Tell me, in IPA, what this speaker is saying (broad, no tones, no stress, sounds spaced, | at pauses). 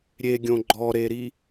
ɾʲ e ɡʲ õ ɡ͡ǃ ɔ ɾ e ɾ i